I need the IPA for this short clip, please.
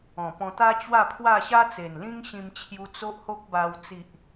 ɔ̃˨˩pɔ̃˧t̪a˦ t͡ɕwa˥˧pʰwa˥˧ ɕa˦t͡se˨˩nlĩ˦ŋ ɕĩ˧mt͡ɕʰju˧ t͡so˦ʔho˦k̚ba˧w t͡si˨ʔ

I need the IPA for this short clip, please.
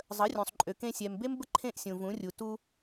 zˤə˨˦rʲũ˨sˤ ǃʼø˨ kẽ˧ sʲɛ˨m be˦mbə˦ ǃʰẽ˦ʔsʲũ˨vũ˨˦ rʲu˨tu˧

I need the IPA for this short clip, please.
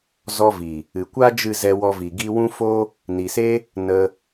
zɔ˧vi˨ | ɨ˨kʷa˦ d͡ʒɨ˦˨zɛ˧ wɔ˧vi˨ ɡi˧wũ˦ fo˦ | ni˨se˦ | nə˧

